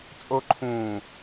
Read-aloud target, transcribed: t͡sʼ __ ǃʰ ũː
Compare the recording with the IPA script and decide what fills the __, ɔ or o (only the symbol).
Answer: o